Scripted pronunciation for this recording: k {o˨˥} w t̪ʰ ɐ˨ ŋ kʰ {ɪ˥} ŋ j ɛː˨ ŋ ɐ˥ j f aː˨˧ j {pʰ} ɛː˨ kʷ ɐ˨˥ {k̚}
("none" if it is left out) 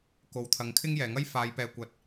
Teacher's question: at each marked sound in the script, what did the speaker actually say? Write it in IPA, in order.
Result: o˨, ɪ˥, p, t̚

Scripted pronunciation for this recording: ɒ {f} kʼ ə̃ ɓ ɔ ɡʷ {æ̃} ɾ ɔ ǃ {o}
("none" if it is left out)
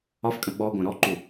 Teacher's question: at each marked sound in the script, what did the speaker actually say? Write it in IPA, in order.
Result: f, æ̃, u

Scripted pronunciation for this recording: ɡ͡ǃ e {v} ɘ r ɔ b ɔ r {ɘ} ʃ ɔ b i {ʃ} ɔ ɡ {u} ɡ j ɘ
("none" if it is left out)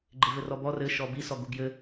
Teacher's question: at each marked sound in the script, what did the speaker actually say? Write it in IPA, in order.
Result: v, ɘ, s, u

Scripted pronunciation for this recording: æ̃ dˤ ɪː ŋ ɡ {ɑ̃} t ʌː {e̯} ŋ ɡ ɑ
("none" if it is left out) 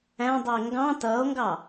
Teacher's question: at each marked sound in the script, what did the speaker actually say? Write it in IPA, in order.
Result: ɑ̃, o̯

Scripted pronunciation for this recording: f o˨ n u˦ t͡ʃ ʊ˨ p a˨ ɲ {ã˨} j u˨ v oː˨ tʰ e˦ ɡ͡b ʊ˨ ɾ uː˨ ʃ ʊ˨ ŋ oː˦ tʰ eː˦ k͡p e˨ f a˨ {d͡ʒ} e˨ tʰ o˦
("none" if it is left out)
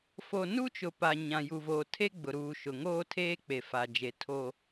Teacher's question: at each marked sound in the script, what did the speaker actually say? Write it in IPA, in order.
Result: ã˨, d͡ʒ

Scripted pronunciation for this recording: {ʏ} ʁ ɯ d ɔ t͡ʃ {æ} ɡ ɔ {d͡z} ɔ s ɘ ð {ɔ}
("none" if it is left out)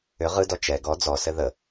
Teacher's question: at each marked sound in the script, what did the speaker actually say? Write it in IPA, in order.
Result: ʏ, ɛ, d͡z, ə

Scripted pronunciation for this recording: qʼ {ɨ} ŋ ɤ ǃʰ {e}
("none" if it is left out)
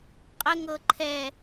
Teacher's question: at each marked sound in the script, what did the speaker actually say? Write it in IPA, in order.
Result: ə, ɛ

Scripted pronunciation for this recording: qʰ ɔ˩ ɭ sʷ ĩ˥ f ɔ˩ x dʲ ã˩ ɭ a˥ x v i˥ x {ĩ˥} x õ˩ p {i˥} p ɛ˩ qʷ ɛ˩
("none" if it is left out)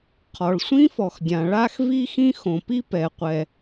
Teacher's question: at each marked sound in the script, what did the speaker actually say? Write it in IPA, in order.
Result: ĩ˥, i˥

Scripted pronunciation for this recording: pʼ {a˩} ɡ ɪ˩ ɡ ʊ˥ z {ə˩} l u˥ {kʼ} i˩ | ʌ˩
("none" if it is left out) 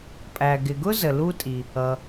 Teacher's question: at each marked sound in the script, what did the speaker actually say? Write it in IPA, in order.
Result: æ˩, ə˩, tʼ

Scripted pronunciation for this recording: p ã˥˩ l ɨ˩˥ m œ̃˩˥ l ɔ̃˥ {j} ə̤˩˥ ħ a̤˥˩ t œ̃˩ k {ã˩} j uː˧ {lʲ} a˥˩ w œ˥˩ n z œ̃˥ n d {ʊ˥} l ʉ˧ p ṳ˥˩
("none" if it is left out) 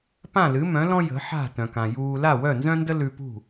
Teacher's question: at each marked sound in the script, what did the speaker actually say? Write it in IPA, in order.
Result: j, ã˩, l, ə˥

